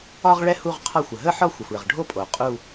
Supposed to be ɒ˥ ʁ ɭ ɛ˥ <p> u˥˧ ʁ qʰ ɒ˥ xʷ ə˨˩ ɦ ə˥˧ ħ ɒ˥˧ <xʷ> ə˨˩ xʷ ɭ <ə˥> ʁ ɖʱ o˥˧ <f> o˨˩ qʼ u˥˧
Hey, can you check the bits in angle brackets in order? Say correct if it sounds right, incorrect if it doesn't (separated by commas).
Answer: incorrect, correct, incorrect, incorrect